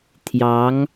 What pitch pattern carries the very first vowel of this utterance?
rising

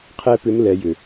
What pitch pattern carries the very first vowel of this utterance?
high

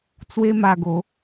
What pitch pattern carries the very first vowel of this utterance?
high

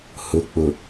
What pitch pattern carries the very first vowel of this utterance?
low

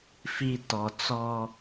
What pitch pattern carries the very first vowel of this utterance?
low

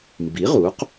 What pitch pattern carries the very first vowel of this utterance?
rising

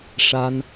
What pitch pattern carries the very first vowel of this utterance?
high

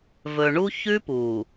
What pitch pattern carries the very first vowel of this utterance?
low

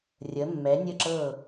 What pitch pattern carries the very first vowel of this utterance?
rising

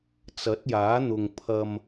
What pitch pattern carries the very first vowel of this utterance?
rising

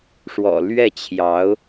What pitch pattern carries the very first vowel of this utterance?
low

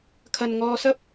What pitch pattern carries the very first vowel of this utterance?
low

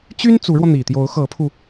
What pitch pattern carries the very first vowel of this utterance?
high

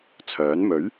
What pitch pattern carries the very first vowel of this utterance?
rising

